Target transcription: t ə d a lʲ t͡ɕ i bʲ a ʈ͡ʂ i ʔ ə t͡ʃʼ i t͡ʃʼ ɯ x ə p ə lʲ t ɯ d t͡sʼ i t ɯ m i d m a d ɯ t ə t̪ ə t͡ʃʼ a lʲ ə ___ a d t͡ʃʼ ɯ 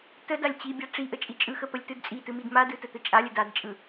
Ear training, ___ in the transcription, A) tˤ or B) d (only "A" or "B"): B